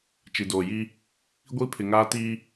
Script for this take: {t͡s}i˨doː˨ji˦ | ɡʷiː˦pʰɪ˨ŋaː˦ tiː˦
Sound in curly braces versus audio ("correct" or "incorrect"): incorrect